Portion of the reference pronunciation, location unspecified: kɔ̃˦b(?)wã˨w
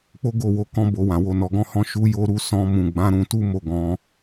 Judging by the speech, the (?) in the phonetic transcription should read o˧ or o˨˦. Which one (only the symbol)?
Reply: o˧